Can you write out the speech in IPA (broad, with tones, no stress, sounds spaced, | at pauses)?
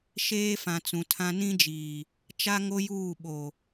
ʃ eː˦ f ã˨ t͡s ũ˨ tʰ ã˦ n ĩ˦ d͡ʒ iː˨ | t͡ʃ a˦ ŋ o˦ j uː˦˨ ɓ o˨